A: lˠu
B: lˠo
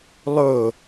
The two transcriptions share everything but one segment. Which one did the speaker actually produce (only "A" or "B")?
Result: B